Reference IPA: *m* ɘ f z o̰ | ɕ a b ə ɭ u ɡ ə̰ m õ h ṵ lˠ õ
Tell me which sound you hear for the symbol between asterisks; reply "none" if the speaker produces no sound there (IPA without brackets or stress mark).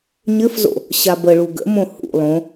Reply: ɲ